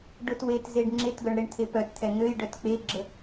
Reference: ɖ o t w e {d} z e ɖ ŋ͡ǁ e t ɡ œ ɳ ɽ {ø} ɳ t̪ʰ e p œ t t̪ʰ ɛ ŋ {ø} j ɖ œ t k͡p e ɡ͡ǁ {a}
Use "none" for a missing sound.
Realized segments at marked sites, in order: t, e, ø, ə

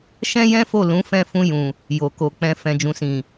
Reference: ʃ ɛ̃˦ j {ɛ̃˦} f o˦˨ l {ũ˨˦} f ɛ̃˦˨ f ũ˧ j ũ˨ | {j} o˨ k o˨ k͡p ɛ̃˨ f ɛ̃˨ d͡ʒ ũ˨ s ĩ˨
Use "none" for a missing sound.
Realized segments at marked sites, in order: ɛ̃˦, ũ˨˦, j

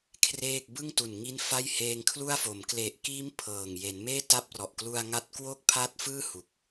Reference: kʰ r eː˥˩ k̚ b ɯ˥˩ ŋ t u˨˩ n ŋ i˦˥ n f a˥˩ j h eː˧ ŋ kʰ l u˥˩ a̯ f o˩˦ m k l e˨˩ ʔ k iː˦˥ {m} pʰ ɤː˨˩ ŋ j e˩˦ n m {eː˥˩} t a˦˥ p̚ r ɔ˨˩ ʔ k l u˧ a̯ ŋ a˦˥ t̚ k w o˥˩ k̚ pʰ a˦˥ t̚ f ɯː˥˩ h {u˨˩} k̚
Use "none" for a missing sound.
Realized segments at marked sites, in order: m, eː˥˩, u˨˩

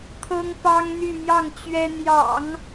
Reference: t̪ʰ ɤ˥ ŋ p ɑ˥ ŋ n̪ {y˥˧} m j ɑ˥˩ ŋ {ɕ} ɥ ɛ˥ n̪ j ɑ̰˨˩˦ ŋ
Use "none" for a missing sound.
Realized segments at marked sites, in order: y˥˧, t͡ɕ

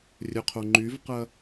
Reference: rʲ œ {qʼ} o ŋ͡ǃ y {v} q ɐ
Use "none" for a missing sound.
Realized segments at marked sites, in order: qʰ, v

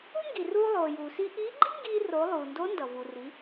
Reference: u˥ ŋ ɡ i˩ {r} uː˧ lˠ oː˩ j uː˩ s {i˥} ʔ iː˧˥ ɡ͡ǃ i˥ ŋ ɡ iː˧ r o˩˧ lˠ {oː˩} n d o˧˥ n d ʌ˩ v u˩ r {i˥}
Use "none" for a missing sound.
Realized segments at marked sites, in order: r, i˧, uː˩, i˩˧

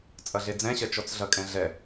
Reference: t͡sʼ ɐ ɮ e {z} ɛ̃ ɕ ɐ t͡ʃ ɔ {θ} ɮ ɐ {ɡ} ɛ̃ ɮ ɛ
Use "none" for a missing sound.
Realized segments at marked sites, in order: d͡z, t͡s, kʼ

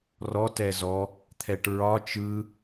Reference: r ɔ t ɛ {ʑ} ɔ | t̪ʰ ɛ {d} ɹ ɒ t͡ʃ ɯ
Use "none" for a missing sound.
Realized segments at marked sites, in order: z, ʈ

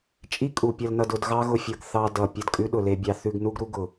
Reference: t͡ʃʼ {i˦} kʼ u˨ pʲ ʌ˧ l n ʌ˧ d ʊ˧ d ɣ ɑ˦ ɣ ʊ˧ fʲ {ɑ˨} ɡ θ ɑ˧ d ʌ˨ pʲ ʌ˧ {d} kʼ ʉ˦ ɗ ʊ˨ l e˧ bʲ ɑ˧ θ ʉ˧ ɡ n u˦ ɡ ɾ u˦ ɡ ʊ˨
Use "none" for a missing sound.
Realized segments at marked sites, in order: i˦, ʌ˨, d

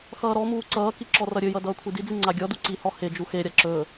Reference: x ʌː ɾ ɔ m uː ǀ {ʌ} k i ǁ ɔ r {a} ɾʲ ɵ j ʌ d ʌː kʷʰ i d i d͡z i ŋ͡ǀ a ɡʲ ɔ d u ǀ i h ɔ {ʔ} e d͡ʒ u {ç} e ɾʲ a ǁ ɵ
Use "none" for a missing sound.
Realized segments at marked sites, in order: ʌː, ʌ, h, x

